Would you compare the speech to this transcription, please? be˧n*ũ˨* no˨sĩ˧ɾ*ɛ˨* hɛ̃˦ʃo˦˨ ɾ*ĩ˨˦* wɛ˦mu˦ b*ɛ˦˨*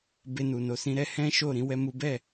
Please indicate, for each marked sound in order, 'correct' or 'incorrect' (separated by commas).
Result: incorrect, incorrect, correct, correct